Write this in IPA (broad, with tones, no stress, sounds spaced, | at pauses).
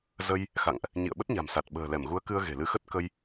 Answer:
z ə˧ j | x a̰˧˨ ŋ ʔ | ɲ ḭ˧˨ ə̯ ɓ ə˦˥ t̚ ɲ a̤˨˩ m s a˨˩ t̚ ɓ ə̤ː˨˩ l ɛ˧˩ m ɣ u˨˦ ə̯ k ɨ˧ ə̯ ɣ e̤˨˩ l ɨ˧ x ə˦˥ t̚ k ə˧ j